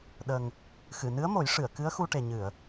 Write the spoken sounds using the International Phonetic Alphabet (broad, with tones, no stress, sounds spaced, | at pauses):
ɗ ə˨˩ ŋ | x ɨ˨˩˨ n ɨ˧˥ ə̯ m o˨˩˦ j ʂ ɨ˨˩˨ ə̯ k ɨ˧˥ ə̯ x u˧ ʈ e˨˩ ɲ ɨ˨˩˨ ə̯